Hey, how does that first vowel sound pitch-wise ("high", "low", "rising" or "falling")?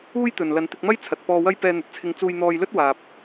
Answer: high